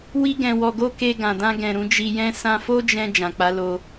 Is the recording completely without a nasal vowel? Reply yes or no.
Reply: no